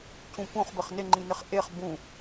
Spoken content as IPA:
c ũ p ũ χ b ɘ χ n ɪ ŋ͡ǃ ĩ n ɪ χ ʔ e χ b ũ

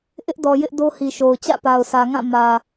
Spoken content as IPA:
ʔ ɪ˦ ʔ d ɔ˨ j ɪ˦ ʔ d o˦ h i˨ ʃ o˨ ʊ̯ t͡ɕ ä̰˦˨ p a˨ ʊ̯ s ä˨ ŋ ã˦˨ m ä˨

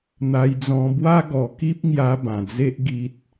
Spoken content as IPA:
n̪ a˧ j d͡z ɔ̃˧ b w a˦ ɡ ɔ˧ k i˦ p̚ ŋ j a˧ b ã˨˩ d͡z e˦ ʔ ɡ i˦ t̚

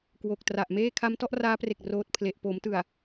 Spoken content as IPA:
k w o˨˩ k̚ t r a˨˩ ʔ m eː˥˩ kʰ a˦˥ m t ɔ˦˥ ʔ r aː˦˥ p r e˨˩ k̚ r oː˦˥ t̚ pʰ l e˨˩ ʔ p oː˩˦ m t ɯ˨˩ a̯

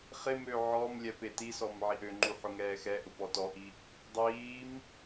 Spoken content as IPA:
χ ɪ m ø ʕ ɔ m lʲ ɛ p e t i s ɔ m ʕ i ʔ ø ŋ͡ǃ u ħ ʊ ŋ ɛː x ɛ ʔ ʊ p ɔ t ɔ ʔ i | dˤ iː m

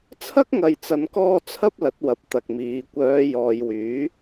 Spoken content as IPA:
t͡sʰ ɐ˥ k̚ ŋ ɐ˨ j t͡s ɐ˨˧ n k ɔː˧ t͡sʰ ɐ˥ p̚ l ɐ˨˥ t̚ w ɐ˨ p̚ t̪ ɐ˨ k̚ m iː˨˧ kʷ œː˨˧ j ɔː˨ j w yː˨˥

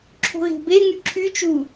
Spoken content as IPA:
ǁʰ o̤ ɣ e̤ b e ŋ y ǁʰ y t͡ʃ u

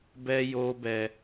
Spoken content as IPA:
b ɛ˦ j o˦ b ɛ˦

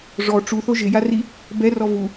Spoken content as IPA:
ʐ ɔ ʈ͡ʂ u θ o ʒ ɪ j a r i | b ɛ r ɔ v u

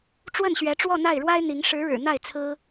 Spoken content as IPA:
ʈ͡ʂ w ə˥˩ n ɕ ɥ ɛ˧˥ ʈ͡ʂ w ɔ˥˧ n̪ a˥˩ ɪ̯ ɻ w a˥ ɪ̯ n̪ i˧˥ ŋ ʂ ɻ̩˧˥ ɻ ɻ̩˨˩ n̪ a˥˩ ɪ̯ t͡sʰ ɹ̩˥

